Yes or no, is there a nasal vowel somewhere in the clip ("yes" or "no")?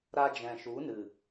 yes